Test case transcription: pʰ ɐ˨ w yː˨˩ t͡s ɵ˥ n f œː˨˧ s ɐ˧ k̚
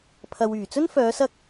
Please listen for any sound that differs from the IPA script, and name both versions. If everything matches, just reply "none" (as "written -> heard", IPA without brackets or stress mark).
none